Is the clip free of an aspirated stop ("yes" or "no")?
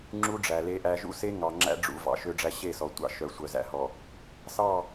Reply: yes